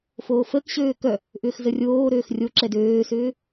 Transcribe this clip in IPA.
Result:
f oː f əː k ɕ øː k œ | ʔ ʏː x z ə rʲ oː ɾ øː x rʲ o ǁ ɛ d øː s ʏː

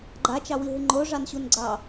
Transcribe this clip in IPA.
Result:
ɡ͡ǃ a t͡ʃ ɑ w i ɦ ɨ ŋ͡ǃ o ʐ ɑ n ɕ u n ɡ͡ǀ ɑ

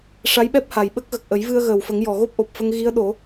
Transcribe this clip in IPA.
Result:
ʂ a˧˥ j ɓ ɛ˦˥ p̚ h a˨˩ j ɓ ə˦˥ k̚ ɣ ə˨˩ k̚ ʔ ə˨˩˦ j v ɨ˧ ə̯ ɣ əː˨˩ w f ə˨˩˦ ŋ j ɔ˨˩ ɣ o˦˥ p̚ ʔ o˨˩ p̚ f ə˧ ŋ ɣ i˧˥ ə̯ ɗ o˨˩˦

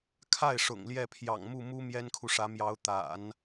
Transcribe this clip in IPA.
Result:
kʰ a˥˩ ɪ̯ ʂ ʊ̰˨˩ ŋ l j ɛ˥˩ pʰ j ɑ̰˨˩ ŋ m u˥˩ m u˥ m j ɛ˥ n kʰ u˨ ʂ ä˧˥ m j ɑ˧˥ ʊ̯ t̪ a̰˨˩˦ n

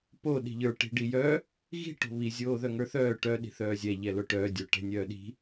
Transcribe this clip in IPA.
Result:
p o ɗ i̤ ʎ ə˞ ʈ i̤ ɖ i j œ | ɣ i̤ ʈ o̤ β i zʲ oː ð œ ŋ ə˞ θ œː ʈ œ ɗ i̤ θ œː zʲ ɛ ʎ ɛ l o ʈ œː dʲ o ʈ ɛ̤ nʲ œː ɗ i̤

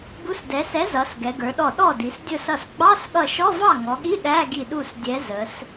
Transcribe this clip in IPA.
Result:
b u˨˥ s d ɛ˩˧ s ɛ˨˥ z ʌ˩˧ s ɡ ɛ˩˧ ɡ ə˞˩˧ ɗ ɔ˧˩ ɗ ɔ˥˩ d i˩˧ s dʲ ʊ˧˩ s ʌ˧˩ s ɡ͡b ɑ˧˥˧ s ɠ ʌ˧˩ ʃ ɔ˧˥˧ v ɑ˥˩ ŋ ɔ˩˧ ɠ i˧˥˧ ɗ æ˧˥˧ ɡ i˧˩ ɗ u˥˩ s dʲ ɛ˨˥ z ə˩˧ s

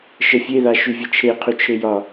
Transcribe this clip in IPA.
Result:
ʃ ə fʲ e ð a ʃ y vʲ ə t͡ʃʰ e qʰ y t͡ʃʰ e j ɒ

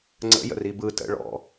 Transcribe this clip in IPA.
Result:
ŋ͡ǀ ə̰ j ə̰ r i b ɯ t ə̰ ɭ ɔ̰

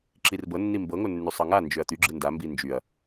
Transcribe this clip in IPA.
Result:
ǁ i r b ɤ nː i m b ɤ ŋ o nː y sˤ ɤ ŋ a n d͡ʒ ø ɐ̯ t̪ y ɡ͡ǁ ɯ n d a m b i n d͡ʒ y ɐ̯

